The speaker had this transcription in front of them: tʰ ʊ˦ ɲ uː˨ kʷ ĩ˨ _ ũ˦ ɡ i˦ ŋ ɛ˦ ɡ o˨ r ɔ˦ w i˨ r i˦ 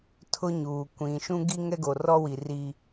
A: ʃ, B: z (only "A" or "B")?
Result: A